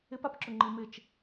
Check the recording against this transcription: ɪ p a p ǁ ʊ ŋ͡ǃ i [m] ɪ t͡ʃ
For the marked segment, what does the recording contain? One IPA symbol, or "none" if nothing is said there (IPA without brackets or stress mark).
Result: m